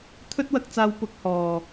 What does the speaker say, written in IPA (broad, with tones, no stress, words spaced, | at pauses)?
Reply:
t̪ʰɵ˥t̚wɐ˧k̚t͡saː˧w pʊ˧k̚hɔː˨